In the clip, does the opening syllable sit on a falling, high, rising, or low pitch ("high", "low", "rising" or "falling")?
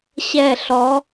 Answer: falling